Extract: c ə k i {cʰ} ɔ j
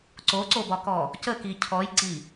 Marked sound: correct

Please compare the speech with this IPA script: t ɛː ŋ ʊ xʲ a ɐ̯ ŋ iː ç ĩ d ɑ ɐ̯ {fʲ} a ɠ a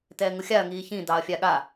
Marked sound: correct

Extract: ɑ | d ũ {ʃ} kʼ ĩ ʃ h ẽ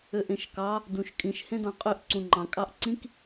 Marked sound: correct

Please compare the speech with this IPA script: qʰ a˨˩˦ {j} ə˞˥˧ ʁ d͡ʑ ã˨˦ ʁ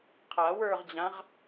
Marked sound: incorrect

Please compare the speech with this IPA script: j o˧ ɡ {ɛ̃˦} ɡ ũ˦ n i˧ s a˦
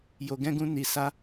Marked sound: correct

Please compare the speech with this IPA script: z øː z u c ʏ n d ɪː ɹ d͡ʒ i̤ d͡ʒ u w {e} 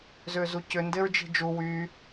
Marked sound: incorrect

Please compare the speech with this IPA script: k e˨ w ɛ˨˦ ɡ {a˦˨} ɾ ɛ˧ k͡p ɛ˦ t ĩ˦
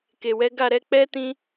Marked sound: correct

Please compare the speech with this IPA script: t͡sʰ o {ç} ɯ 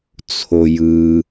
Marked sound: incorrect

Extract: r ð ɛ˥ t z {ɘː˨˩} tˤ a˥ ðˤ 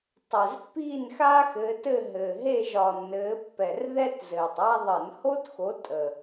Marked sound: correct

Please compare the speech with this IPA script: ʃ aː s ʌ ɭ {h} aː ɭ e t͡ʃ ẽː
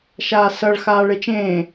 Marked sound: incorrect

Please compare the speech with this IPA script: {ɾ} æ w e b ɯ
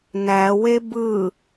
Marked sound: incorrect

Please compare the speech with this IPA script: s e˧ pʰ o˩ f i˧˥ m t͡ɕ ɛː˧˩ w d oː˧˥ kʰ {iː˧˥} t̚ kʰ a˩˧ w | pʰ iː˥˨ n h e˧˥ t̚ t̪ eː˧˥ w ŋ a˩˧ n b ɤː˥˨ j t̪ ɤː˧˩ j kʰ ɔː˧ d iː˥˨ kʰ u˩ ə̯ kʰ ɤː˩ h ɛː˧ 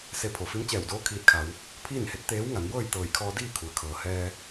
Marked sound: incorrect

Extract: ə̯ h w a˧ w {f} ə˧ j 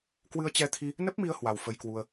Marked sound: correct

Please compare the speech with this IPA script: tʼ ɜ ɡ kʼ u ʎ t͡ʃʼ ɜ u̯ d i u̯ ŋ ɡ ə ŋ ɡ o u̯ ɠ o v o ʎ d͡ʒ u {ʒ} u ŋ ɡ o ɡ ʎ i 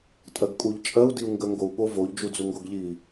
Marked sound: incorrect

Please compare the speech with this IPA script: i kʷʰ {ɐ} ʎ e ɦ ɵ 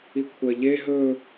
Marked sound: correct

